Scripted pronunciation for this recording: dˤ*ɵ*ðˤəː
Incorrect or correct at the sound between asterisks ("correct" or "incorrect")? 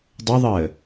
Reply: incorrect